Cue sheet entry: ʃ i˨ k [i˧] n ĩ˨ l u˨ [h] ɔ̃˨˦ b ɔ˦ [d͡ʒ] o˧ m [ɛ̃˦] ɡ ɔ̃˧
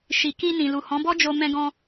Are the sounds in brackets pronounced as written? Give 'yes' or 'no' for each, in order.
yes, yes, yes, no

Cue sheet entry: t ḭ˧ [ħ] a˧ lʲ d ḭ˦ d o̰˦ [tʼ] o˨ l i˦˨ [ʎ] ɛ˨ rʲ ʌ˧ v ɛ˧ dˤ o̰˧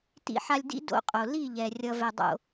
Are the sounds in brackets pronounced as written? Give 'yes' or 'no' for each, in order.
yes, no, yes

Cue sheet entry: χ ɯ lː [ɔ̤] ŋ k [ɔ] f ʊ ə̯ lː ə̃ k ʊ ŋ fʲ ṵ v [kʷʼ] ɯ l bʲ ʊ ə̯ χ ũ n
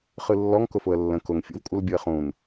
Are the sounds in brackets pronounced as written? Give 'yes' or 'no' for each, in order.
no, no, yes

